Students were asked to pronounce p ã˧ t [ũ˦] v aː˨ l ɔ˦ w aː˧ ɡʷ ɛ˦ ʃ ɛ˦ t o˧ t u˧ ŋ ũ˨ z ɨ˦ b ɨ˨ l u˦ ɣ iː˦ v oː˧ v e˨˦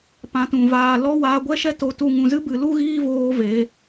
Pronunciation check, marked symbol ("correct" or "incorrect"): incorrect